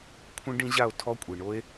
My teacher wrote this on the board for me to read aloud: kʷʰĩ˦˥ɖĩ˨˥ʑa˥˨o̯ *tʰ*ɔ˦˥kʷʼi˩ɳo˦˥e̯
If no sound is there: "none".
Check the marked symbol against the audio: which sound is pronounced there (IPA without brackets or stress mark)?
tʰ